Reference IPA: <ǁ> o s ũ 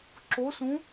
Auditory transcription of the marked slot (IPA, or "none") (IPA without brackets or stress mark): ǁ